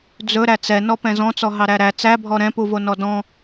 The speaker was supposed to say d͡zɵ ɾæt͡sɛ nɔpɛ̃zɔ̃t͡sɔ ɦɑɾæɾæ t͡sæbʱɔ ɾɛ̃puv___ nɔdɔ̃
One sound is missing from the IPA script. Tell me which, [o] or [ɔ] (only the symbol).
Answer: o